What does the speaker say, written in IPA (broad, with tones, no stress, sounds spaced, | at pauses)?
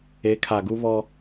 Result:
e˨˦ kʰ a˨ ɡ u˦ β ɔ˦